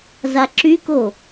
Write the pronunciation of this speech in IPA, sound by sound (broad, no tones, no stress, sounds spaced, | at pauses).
z a ǁ y k o